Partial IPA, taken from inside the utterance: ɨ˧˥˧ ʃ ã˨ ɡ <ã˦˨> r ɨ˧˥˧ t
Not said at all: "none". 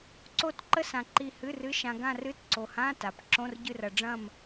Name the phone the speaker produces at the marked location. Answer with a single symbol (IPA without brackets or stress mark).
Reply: ã˦˨